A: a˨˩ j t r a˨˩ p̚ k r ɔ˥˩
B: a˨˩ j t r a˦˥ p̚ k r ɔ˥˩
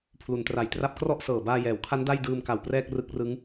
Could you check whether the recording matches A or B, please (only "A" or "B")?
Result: B